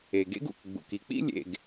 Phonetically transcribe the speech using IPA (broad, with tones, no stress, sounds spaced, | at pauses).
e˩ ɡ ḛ˥ ɡ ṵ˩ k ɡ͡b ṵ˩ k i˨ k͡p ḭ˥ lʲ ḛ˨ ɡ